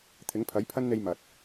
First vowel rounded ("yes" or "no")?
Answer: no